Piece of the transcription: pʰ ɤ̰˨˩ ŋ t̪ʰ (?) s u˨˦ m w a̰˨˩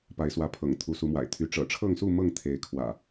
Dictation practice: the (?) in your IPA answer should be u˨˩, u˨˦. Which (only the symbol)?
u˨˦